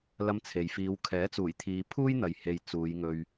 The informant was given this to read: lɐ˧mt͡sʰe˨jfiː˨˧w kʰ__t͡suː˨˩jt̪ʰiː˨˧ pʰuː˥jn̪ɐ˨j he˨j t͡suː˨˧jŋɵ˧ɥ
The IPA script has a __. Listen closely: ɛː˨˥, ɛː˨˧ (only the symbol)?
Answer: ɛː˨˥